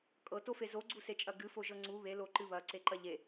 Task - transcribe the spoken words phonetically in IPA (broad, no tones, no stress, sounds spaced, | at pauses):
kʼ ɤ t o f e z o ɡ͡ǀ u s e t͡ʃʼ ɐ ɡ ɨ f o ʒ ɤ ŋ͡ǀ u β e l o ǃ ɨ β ɐ ǀ e ǃ ɐ ʎ e